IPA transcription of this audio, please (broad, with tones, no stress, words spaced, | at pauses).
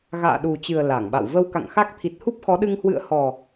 ɣa̰ː˧˨ɗu˨˩t͡ɕɨ˨˩ə̯ la˧˩ŋɓa̰˧˨w və˧wka̰˧˨ŋxa˦˥k̚ t̪ʰi˨˩t̚hu˦˥p̚xɔ˨˦ɗɨ˧ŋ hwɨ̰˧˨ə̯hɔ˨˩